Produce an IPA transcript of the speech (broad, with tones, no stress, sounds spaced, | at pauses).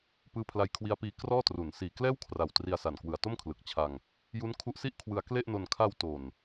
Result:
p ɯː˦˥ pʰ l a˧ j kʰ w i˦˥ a̯ p iː˧ k r ɔː˥˩ t r u˩˦ n s iː˨˩ k l ɛː˥˩ w kʰ r a˨˩ w t r i˧ a̯ s a˨˩ n k w ɯ˨˩ a̯ t o˥˩ m kʰ l ɯ˨˩ k̚ t͡ɕʰ a˧ ŋ | j u˦˥ n kʰ u˦˥ ʔ s i˥˩ ʔ kʰ w ɯ˧ a̯ k l e˥˩ ʔ n o˧ n kʰ a˧ w t o˨˩ n